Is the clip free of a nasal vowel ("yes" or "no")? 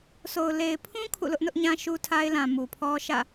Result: no